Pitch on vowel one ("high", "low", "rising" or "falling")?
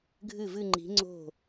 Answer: falling